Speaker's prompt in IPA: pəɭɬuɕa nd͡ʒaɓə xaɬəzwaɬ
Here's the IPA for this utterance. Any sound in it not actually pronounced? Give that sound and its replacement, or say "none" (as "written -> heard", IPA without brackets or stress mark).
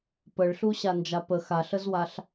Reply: ɓ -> p